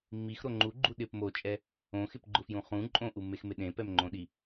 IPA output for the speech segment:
mː i x ɾ o ŋ͡ǃ u ɡ͡ǃ u ɗ ɪ p m o t͡ʃʼ ɛ | õ x ɪ p ɡ͡ǃ ʊ f j ũ χ ũ ǃʼ õ ʔ u mː e x m ɪ ɗ ẽ p ɛ m ŋ͡ǃ õ ɗ i

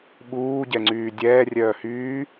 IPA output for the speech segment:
ɓ uː ɟ ɛ ŋ͡ǀ yː dʲ ɛː rʲ œː h yː

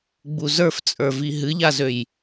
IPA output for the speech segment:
ɡ͡b u z ə˞ f t͡sʼ ə˞ v i ɦ ɨ ʎ a z ø j

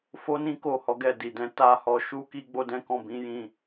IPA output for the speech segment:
f o˦ n ĩ˦ k o˦˨ h ɔ˨˦ ɡ ɛ˦˨ d i˨ d ɛ̃˧ t a˧ h ɔ˧ ʃ u˦ k i˦ ɡ͡b o˦ d ɛ̃˦ k ɔ̃˦˨ b ĩ˨˦ j ĩ˧

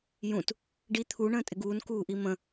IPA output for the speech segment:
j ũ t | ɖ i t̪ʰ u ɳ ə̃ː tʼ ɪ ɡ uː n k uː ʔ i m ə̃

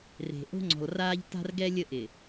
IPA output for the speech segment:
r e̤˨ ʔ o̤˦ ŋ͡ǀ ɔ̤˨ l r aː˦ ʎ t a̤˦ r ɡ ɛ˦ lʲ ə˦ ʔ ɪ˨

